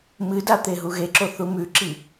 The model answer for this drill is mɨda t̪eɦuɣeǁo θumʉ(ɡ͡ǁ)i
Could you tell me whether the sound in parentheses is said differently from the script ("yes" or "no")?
yes